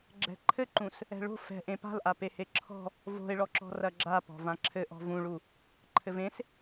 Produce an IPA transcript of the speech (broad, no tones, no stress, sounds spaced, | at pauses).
ɡ͡ǁ ɛ̤ ǃʰ ɘ ǃ ũ s | ɛ̤ ɭ o̤ f ɛ̤ ʔ ẽ p a̤ l ʔ a p e h e ǁʰ ɔ̤ | v o̤ ɪ̯ ɭ ɔ ǁ ɔ̤ r ɐ ɡ͡ǁ a p ɔ̤ v ã ǁʰ ɘ ʔ ɔ̤ v ũ ɭ u | ǃʰ ɘ v ẽ s